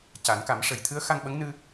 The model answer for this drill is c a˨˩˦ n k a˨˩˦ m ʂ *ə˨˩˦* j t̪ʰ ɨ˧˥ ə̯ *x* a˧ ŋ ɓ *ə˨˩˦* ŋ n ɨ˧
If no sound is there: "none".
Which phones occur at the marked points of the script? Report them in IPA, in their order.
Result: ə˨˩˦, x, ə˧˥

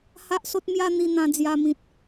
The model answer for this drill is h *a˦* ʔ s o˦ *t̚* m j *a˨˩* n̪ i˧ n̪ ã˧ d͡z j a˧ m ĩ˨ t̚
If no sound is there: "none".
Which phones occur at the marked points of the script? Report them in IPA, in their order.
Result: a˦, t̚, a˦

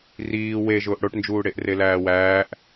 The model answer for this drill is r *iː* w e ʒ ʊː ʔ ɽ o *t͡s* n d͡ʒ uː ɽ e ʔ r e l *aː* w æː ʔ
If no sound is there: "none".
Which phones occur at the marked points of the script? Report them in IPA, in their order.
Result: iː, ʈ, æː

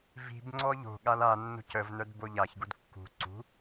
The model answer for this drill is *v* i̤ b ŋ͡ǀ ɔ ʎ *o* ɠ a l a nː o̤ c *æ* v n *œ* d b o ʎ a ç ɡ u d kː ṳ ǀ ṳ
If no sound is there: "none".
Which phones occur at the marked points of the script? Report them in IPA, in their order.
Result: v, o̤, ə, œ

